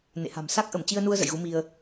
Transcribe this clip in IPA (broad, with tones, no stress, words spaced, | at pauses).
nḛ˧˨ha̤˨˩m sa˦˥k̚ʔə˧˩mt͡ɕi˧ə̯nu˧ə̯ zə̰˧˨jɣu˨˦ mi˧ə̯